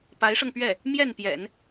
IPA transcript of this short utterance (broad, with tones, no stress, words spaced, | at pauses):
pa˧˥ɪ̯ʂɤ˧ŋpɥɛ˥˩ | mjɛ˥˩npjɛ̰˨˩˦n